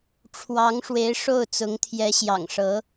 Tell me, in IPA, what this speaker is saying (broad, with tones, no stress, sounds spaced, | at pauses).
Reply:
ʈ͡ʂʰ w ɑ˧˥ ŋ ʂ w e˧˥ ɪ̯ ʂ o˥˩ ʊ̯ t͡s ʊ˧˥ ŋ t̪ʰ j ɛ˧˥ ɕ j ɑ̰˨˩ ŋ ʂ ɤ˧˥